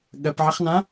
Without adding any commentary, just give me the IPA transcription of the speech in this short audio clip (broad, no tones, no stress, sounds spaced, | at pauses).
ɠ ɜ p ʕ ə χ n ã